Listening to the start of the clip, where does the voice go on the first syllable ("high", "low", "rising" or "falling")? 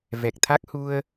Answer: low